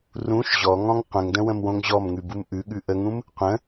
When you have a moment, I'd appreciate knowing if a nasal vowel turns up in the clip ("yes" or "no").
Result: yes